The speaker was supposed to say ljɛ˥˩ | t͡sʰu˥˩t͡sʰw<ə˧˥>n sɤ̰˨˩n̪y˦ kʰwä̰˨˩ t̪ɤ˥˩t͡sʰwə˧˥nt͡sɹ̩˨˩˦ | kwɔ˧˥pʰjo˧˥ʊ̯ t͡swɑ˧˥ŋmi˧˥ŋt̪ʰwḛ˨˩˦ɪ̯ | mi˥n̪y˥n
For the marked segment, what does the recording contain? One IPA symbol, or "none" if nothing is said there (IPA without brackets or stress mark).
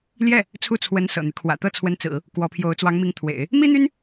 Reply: ə˧˥